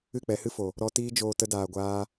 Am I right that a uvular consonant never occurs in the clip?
yes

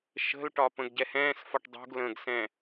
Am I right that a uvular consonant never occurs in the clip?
yes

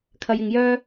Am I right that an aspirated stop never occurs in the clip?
no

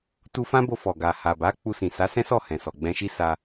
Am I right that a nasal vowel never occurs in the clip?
no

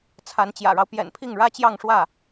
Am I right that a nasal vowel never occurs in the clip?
yes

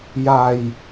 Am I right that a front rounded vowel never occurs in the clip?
yes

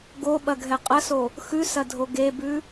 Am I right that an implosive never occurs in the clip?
no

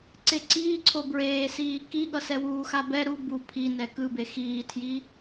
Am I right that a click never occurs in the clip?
no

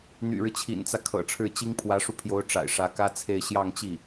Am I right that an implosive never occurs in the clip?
yes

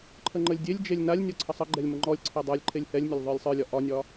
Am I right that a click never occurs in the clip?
no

